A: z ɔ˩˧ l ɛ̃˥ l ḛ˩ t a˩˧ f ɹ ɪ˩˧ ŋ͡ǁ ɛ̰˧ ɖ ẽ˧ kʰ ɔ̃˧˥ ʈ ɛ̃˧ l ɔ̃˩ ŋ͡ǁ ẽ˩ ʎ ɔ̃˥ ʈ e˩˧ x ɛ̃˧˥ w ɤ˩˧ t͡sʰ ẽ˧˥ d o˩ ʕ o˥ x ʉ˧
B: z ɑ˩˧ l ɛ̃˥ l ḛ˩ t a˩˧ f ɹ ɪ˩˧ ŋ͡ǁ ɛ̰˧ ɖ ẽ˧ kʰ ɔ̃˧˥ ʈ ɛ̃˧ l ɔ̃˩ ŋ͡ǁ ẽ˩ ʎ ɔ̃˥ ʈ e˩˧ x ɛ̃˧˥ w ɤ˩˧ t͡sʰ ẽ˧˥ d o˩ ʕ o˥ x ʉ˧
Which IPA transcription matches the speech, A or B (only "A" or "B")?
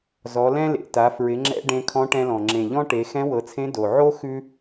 A